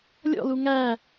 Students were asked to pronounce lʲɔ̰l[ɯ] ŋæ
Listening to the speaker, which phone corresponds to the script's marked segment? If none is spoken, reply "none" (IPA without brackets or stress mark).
u